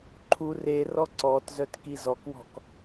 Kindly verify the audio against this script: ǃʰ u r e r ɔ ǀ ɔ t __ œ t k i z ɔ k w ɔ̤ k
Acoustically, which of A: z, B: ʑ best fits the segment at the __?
A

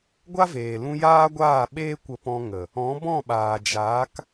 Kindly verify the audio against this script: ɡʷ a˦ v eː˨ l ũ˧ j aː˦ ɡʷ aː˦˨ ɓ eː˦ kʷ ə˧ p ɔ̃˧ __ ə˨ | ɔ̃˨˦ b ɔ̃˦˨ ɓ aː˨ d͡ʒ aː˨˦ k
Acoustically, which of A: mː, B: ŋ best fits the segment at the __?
B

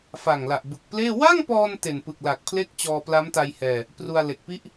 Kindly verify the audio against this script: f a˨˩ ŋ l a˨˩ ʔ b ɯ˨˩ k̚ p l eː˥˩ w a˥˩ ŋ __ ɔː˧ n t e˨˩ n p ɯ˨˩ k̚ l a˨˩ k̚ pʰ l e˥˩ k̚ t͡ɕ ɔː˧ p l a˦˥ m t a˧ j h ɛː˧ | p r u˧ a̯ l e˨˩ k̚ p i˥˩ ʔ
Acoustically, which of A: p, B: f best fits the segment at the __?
A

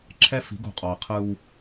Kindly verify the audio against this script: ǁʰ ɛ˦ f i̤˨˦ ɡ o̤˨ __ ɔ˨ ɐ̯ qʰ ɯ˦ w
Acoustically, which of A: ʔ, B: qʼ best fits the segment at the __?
B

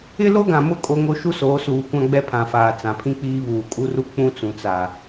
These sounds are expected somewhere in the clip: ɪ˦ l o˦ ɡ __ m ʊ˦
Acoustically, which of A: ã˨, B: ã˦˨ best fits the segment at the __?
A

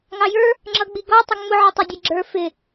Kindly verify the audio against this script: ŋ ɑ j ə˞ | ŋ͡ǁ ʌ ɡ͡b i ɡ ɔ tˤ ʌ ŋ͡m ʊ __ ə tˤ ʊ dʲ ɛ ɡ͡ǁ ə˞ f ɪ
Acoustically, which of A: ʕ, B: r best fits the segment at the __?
A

